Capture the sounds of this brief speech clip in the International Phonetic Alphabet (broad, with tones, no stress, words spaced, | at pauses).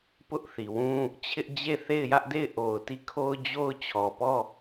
pʊ˦ʔ θi˨wũ˦ | t͡ɕʰɪ˦ʔd͡ʑe˦˨ θe˦˨ɪ̯jä˦ʔde˦˨ɪ̯ ʔo˨ʊ̯ti˦˨kʰo˦ʊ̯d͡ʑo˦ʊ̯ t͡ɕʰɔ˨pɔ˦˨